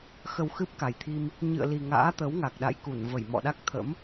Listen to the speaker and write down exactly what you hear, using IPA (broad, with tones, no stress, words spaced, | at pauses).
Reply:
xə˧w xɨ˦˥p̚ka˨˩jt̪ʰi˧m | ɲɨ̰˧˨ə̯li˨˩ ŋa̰ː˧˥t̪ə˨˦wŋa˨˩k̚ ɗa̰˧˨jku˧˩nvə˧˩j mɔ̰˧˨ɗa˦˥k̚t̪ʰə̰˧˥m